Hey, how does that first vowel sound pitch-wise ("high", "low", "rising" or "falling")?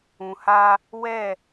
low